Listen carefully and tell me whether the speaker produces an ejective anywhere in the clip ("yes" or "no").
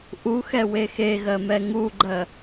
no